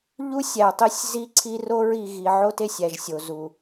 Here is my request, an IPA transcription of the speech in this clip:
ʎu˦sʲæ˨tˤi˦sʲ zi˦ǀʰi˦ro˦ɹi˨ ɣi˨ʕo˦te˨sʲ æ˨ʒsʲo˨zu˨

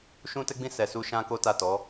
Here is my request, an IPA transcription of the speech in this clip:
ʃũ˦tɛ˦ɡ͡bĩ˦ sɛ˧su˦ ʃã˦ko˦ ta˦˨tɔ˨˦

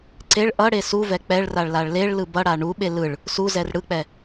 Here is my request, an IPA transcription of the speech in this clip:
ǀeɭ ʔʌɽe suvɛ k͡pɛɭraɭlaɭ leɭlɯ bʌɽa ɳuɓe lɯɭ | suzɛr ɽɯk͡pɛ

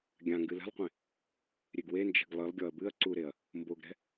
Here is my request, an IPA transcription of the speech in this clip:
ɡʲã ŋɡɨlɛ̤lˠqʷẽ | ɾʲeɡwend͡ʒɛ̤ɡ lˠɨlˠɡʲɔɐ̯ bɨɐ̯ ǀuɾeɐ̯ | mboɡɾɛ̤

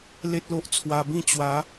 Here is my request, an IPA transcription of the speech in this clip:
le˦t̚lo˦ʔt͡sʰwa˧bĩ˥˧ t͡ɕwa˨˦

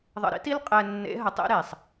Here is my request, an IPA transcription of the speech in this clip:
ðˤə̰˨ɾḭ˦ti˦l qʼɛ˨nːḛ˨˦ɦə˨ tˤḛ˦ɾe˨sˤ

